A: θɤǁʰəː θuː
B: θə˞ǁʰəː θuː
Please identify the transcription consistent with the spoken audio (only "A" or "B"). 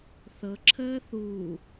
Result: A